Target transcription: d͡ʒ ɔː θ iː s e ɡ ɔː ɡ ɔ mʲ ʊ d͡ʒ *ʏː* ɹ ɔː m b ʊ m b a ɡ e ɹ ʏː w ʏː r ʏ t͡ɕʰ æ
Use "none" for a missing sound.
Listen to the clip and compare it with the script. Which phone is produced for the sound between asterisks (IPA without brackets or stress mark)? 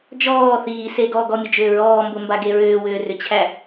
ʏː